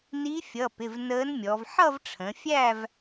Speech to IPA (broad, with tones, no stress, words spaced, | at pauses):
ni˧˥fʲʌ˩˧˩pɪ˩˧˩v nəː˧˥nmʲɔ˩˧v ħʌ˥˧vʈ͡ʂʰə̃˩˧fʲæ˥˧v